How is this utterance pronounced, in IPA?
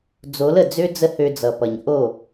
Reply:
d͡z o˨˦ l ə˨ d͡z ø˦ d͡z ə˦ h ø˧ d͡z ʌ˨ p ʌ˨ ɲ ʔ o˦˨

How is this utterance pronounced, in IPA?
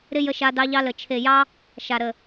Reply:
ɾ ɪ˦ j ə˧ ʃ a˧ d ɑ˧ ʎ ɑ˧ l ə˨ t͡ʃʰ e˨ j ɑ˦ | ʃ a˨ ɾ ə˨

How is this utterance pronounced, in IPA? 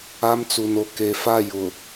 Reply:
a˦ m t͡s u˨ n o˨ k e˨ f a˦˨ j ʊ˨

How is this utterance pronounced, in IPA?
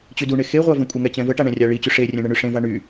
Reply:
t͡ɕ y d u ɳ e x e ʁʷ a v ɛ̃ kʷʼ ə ŋ ɛ t͡ɕ ɛ̃ v ə ʈ a ɳ ɛ̃ rʲ a ɭ i t͡ɕ y ʂ e rʲ ɛ̃ ɳ ə ɳ y ʂ ẽ v a ɳ y

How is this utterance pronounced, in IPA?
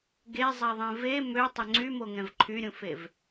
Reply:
ɡ e zˤ ɛ ðˤ ẽ v e m ø tˤ œ ŋ͡ǀ y m o ŋ ɛ̃ v ǃʰ y ɾʲ ũ f e v

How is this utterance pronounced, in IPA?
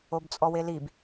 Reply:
o b t͡sʼ ɔ w e l i b

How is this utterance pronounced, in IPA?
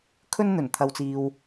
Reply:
kʰ ɵ˧ n n̪ ɵ˨˩ n t̪ʰ ɐ˨ w t͡s iː˨ w

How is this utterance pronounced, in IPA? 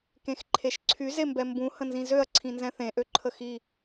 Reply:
k ẽ x ǃʰ e ʃ ǀʰ y z e m b ɛ m b ũ h ə̃ n z ĩ z ø ɐ̯ ǀʰ ĩ n z ɛ̃ θ ẽ ʔ ø ǃʰ ə x i

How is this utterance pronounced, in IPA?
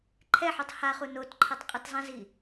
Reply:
ǃʰ ɛ ħ u tˤ h a χ u n o t ǃʰ ɤ tˤ qʼ ɯ t zˤ ɛ̃ z i

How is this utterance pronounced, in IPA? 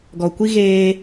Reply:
ɡ ɔ˨ kʷ i˦ ɣ eː˦

